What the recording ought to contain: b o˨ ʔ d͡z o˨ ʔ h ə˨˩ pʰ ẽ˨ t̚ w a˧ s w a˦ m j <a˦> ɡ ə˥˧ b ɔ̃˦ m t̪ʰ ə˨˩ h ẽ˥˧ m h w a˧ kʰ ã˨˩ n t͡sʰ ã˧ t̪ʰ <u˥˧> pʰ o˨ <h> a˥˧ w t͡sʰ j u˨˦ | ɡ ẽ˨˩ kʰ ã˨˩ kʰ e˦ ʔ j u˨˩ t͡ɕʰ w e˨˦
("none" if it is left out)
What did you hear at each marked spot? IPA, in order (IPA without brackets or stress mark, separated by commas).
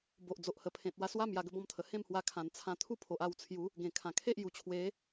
a˧, u˥˧, ʔ